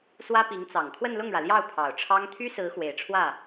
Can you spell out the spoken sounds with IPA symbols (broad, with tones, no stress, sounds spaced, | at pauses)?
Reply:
s w ä˥ p i˧˥ ŋ t͡s ɑ˨˩ ŋ kʰ w ə˥˧ n l ʊ˥˩ ŋ ɻ ä˩ l j ɑ˥˩ ʊ̯ pʰ ɑ˨˩ ʊ̯ ʈ͡ʂʰ ɑ˥ ŋ t̪ʰ y˥ s ɹ̩˧˥ x w e˨˩ ɪ̯ ʈ͡ʂʰ w ä˥˩